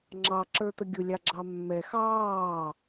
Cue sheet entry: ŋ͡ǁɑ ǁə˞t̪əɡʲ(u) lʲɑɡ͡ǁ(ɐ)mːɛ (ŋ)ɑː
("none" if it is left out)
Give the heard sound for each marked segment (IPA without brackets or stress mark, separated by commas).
ʊ, ɑ, x